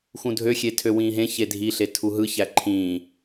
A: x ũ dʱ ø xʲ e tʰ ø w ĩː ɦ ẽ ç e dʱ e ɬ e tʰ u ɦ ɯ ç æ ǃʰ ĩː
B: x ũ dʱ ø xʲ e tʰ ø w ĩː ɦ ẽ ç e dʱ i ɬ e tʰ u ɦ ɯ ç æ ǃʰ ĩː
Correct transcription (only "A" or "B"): B